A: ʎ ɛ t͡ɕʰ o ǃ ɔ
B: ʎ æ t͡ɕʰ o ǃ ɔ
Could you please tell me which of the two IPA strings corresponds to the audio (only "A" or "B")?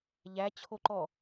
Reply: B